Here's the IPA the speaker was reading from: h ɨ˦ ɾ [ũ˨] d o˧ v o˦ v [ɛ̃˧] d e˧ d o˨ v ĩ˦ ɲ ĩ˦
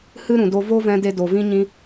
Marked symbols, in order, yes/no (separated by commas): yes, yes